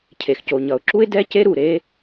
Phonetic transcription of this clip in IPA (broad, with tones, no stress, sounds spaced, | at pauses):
cʰ e˩ x c o˩ ɲ ʌ˩ ʊ̯ ǁ u˥ ɪ̯ d ɛ˥ c e˥ ɾ u˩ ɾ e˥